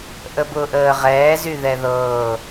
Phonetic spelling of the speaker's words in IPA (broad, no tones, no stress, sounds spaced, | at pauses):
ʔ ə b ʊː ʔ əː ʁ ɛː z y ð ɛ ð ɤː